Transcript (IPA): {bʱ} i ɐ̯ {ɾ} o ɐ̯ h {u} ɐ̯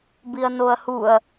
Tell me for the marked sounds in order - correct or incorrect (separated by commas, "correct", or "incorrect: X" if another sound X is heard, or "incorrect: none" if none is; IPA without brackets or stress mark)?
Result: incorrect: b, incorrect: n, correct